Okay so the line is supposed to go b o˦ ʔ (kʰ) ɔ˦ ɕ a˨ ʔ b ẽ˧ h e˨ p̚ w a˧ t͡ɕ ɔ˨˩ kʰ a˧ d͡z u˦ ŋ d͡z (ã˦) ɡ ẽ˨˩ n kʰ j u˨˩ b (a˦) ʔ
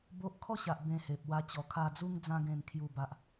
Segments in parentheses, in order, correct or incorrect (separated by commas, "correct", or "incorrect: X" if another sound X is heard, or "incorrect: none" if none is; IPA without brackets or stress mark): correct, incorrect: ã˧, incorrect: a˨